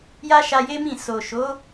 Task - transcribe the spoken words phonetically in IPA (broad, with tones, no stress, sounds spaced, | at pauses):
j a˦ ʃ a˧ j e˦ m ĩ˦˨ s o˨ ʃ o˨˦